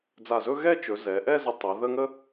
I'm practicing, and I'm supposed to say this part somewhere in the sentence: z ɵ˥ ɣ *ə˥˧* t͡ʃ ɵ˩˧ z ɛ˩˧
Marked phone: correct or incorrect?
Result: incorrect